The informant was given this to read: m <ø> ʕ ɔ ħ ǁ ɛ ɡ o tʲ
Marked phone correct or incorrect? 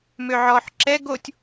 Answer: correct